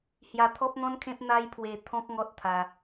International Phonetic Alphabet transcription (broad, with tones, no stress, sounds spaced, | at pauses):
h j a˧ t̪ʰ ɔ˦ p̚ n̪ ɔ̃˦ n kʰ ẽ˦ p̚ n̪ a˦ j pʰ w e˧ t̪ʰ ɔ̃˦ k̚ ŋ ɔ˦ t̚ t̪ʰ a˧